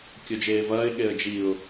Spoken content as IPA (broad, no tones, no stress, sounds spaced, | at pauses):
kʲ o d͡ʒ eː v ɐː ɪ̯ ɠ e ə̯ d͡ʒ i ʊ̯